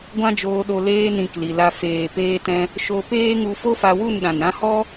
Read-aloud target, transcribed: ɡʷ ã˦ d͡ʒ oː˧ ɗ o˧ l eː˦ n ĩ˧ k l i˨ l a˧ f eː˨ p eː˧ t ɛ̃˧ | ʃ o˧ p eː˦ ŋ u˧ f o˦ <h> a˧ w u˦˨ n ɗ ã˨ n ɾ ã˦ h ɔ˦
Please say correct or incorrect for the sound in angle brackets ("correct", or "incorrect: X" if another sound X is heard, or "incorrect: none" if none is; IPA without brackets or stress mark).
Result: incorrect: f